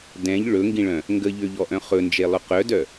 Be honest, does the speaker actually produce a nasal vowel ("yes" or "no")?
yes